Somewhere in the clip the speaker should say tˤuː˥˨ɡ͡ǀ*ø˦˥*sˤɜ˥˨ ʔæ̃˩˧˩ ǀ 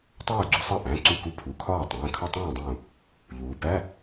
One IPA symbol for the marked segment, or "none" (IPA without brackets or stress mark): u˦˥